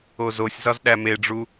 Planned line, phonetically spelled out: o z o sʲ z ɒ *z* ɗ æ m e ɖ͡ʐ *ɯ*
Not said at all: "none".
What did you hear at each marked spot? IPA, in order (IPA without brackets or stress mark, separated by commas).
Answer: z, u